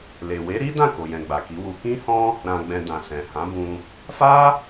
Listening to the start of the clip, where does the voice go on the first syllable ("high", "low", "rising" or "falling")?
low